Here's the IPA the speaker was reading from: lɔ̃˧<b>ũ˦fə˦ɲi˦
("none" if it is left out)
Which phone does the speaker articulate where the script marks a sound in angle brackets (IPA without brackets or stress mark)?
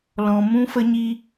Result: m